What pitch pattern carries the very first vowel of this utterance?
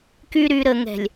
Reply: low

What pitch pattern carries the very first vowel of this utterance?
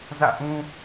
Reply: falling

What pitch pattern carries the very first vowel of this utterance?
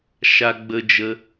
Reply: high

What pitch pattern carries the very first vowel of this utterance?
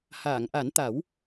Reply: low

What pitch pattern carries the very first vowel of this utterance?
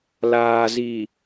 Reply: low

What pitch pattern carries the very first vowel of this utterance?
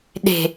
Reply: low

